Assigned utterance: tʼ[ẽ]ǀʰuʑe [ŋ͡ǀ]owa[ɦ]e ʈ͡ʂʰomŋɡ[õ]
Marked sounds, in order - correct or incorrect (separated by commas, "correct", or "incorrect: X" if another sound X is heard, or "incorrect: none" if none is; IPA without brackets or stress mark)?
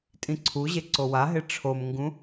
incorrect: ĩ, incorrect: ǀ, correct, incorrect: ũ